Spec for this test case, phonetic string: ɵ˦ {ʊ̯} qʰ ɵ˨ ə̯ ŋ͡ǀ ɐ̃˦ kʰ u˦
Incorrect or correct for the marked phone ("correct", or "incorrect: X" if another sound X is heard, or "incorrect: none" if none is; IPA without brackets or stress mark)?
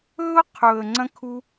correct